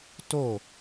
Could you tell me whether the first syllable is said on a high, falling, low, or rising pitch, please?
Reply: falling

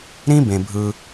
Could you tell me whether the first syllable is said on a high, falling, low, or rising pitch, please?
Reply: high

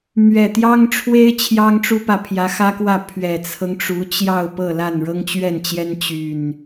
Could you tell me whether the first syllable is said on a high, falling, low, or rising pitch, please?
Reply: low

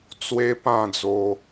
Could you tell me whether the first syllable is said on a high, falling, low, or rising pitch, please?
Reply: high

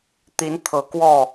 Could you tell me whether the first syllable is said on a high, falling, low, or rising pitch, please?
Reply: rising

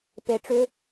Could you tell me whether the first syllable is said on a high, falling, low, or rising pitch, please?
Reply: low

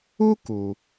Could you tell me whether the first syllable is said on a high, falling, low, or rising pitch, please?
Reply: high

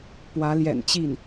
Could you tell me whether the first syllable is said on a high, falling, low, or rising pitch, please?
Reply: rising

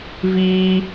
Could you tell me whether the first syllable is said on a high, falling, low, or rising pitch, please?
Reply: high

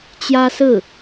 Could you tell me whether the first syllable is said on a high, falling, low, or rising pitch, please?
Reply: high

